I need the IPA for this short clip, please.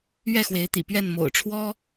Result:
ɥɛ˥˨xwe˨˦ɪ̯t̪ḭ˨˩pɥɛ˥˨n mo̰˨˩ʊ̯ʈ͡ʂʰwɔ˦

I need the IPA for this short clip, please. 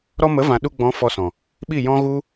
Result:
ɾɔ˧mə˨˦vã˨ ɗu˧ ɡ͡bɔ̃˨˦ fɔ˧sɔ̃˨ | ɓi˦˨jɔ̃˦ ɣu˦

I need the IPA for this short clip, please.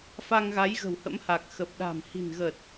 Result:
fa˧ŋɣa˨˦jɣə̤˨˩w hə̰˧˥mha˨˩k̚xə˨˩p̚ ɗa̤˨˩mhi̤˨˩nɣə˨˩t̚

